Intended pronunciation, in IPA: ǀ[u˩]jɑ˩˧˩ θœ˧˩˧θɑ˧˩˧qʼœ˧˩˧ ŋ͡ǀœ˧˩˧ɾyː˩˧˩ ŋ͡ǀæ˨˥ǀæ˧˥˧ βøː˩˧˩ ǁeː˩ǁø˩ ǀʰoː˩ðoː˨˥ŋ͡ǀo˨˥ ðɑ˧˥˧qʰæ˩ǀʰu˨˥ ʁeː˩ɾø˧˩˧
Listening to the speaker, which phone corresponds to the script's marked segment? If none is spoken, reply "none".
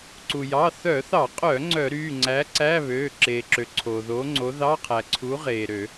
u˩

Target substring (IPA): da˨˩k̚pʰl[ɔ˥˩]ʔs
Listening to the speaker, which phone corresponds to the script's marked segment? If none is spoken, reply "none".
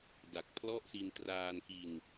ɔ˥˩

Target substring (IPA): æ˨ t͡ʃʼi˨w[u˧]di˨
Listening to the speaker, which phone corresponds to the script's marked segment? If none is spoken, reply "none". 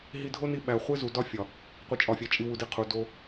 u˨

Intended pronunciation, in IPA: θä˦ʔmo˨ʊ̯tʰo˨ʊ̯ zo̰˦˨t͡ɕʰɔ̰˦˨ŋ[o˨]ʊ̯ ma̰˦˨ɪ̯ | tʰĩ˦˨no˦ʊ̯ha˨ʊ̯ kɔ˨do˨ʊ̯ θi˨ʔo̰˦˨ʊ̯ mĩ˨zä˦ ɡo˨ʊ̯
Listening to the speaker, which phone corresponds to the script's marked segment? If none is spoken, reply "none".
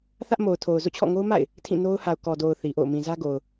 o˦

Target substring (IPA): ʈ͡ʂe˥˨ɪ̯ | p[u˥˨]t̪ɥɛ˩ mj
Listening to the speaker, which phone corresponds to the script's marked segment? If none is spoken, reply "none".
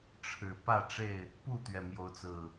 u˥˨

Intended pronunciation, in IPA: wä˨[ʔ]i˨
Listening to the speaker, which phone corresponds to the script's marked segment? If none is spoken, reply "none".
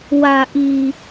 ʔ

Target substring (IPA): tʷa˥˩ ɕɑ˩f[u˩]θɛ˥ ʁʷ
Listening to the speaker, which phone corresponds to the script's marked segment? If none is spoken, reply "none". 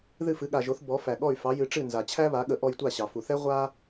u˩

